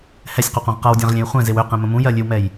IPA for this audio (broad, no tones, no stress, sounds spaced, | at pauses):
h ɛ sʲ q u qʷ ã ʁ q ʌ w dʲ ã ʁ lʲ ẽ j χʷ ɛ̃ z e w ø q ɛ̃ m ə̃ m ũ j ɜ lʲ ø w m ɛ j